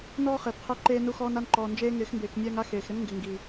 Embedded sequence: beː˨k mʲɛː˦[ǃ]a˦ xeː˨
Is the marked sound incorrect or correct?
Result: incorrect